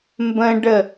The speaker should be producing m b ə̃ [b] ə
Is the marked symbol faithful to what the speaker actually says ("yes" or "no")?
no